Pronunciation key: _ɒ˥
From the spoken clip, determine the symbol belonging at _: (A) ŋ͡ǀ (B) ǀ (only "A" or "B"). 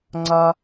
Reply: A